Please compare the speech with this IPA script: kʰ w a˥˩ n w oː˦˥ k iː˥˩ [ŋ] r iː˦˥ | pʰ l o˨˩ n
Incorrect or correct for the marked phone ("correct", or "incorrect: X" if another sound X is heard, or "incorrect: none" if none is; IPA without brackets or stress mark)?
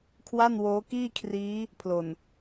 incorrect: kʰ